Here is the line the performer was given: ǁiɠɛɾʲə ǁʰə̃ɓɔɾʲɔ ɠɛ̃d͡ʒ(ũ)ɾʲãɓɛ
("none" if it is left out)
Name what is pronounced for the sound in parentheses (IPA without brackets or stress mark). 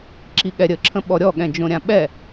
õ